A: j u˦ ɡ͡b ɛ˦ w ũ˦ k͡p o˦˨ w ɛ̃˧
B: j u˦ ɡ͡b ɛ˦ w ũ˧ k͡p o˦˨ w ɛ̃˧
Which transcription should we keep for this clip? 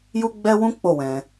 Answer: A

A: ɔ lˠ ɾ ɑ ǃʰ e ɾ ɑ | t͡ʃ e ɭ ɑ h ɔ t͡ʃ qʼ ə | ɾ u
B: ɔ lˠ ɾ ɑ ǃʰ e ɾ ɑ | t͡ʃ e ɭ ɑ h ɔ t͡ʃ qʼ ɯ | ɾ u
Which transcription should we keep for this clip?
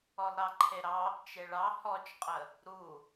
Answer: A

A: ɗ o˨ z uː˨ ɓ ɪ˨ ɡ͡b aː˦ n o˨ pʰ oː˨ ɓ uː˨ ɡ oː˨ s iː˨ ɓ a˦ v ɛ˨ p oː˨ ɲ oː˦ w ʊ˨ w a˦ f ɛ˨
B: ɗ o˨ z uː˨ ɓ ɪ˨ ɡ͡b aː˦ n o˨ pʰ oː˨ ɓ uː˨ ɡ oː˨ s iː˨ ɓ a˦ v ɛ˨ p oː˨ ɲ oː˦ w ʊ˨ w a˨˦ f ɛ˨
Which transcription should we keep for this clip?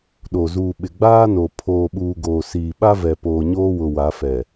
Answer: B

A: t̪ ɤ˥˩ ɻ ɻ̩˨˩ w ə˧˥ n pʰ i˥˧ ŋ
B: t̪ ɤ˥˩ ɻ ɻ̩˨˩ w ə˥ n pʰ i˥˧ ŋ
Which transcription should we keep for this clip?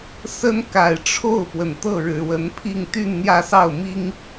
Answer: A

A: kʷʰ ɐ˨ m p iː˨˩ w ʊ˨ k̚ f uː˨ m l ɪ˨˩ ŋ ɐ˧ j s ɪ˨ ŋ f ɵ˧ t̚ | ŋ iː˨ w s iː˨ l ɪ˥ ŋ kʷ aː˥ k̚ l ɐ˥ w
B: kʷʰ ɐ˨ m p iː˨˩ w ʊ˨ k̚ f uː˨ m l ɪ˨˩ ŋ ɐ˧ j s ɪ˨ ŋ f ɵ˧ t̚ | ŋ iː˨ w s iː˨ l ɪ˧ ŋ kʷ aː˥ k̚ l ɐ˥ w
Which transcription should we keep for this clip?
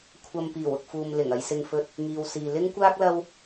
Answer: A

